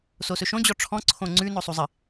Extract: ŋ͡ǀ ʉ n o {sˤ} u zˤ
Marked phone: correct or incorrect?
correct